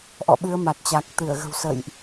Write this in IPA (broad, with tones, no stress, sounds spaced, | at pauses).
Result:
ʔ ɔ̰˧˨ ɓ ɨ˨˦ ə̯ m a˨˩ t̚ t͡ɕ a˨˩ k̚ t̪ ɨ˧˩ ə̯ ɣ ə̤˨˩ w s ə̰˧˨ j ʔ